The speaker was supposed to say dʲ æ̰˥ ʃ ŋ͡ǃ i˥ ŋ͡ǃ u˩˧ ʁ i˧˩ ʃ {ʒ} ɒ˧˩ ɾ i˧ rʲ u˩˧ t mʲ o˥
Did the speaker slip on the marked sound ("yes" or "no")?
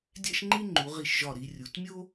no